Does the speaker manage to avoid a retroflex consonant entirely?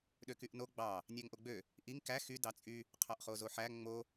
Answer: yes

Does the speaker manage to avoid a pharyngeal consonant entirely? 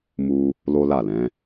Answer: yes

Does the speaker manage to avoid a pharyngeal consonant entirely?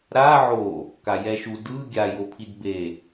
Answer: no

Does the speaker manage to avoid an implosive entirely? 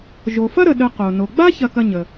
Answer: no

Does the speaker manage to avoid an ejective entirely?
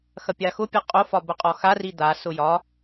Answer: no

